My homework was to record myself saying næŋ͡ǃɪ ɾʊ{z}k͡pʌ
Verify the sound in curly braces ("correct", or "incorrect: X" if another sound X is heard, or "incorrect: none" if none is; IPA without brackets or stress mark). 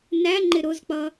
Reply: correct